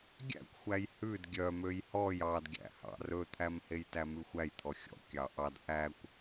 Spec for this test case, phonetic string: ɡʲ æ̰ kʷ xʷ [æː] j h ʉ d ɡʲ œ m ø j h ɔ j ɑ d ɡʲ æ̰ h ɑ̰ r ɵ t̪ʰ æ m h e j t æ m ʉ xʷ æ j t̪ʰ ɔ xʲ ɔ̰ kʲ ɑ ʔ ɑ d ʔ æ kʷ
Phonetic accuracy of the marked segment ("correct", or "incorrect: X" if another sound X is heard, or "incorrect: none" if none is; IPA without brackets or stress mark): incorrect: æ